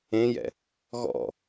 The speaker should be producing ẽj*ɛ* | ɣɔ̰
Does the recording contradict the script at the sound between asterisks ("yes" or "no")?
yes